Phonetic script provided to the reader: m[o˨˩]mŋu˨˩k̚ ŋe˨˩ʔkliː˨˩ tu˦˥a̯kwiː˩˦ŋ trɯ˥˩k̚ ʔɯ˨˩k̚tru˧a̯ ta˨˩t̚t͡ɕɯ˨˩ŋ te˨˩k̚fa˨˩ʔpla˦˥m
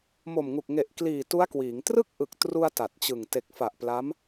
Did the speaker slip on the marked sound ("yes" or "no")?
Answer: no